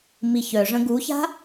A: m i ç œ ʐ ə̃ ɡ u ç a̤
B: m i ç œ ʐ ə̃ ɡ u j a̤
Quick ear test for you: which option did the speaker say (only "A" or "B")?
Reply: A